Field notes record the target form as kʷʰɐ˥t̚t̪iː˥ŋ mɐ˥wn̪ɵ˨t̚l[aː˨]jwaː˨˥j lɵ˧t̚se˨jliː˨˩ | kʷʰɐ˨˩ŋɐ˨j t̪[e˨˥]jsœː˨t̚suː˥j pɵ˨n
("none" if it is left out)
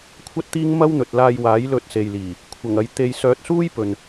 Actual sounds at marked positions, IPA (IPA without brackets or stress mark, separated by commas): aː˧, e˨